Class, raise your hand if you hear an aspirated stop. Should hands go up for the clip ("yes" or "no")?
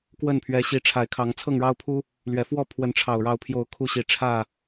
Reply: yes